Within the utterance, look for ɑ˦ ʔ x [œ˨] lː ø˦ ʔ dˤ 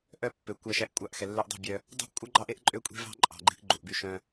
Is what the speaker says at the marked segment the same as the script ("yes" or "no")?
no